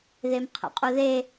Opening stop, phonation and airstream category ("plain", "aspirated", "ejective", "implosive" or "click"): aspirated